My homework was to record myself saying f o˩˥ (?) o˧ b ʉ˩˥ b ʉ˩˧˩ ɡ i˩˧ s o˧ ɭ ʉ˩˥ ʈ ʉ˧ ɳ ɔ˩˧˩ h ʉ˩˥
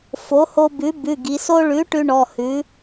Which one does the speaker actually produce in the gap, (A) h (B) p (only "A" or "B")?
A